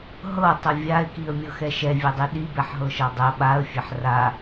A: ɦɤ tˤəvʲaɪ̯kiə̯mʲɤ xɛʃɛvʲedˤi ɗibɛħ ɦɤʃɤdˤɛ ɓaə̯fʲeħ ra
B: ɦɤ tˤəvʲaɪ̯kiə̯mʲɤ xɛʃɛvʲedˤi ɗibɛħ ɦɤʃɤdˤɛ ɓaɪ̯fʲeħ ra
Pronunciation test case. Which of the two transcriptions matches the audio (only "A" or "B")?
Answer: A